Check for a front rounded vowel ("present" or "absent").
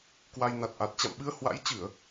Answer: absent